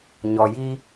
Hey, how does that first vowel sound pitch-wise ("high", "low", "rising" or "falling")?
low